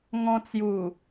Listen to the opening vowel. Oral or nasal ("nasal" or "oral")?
nasal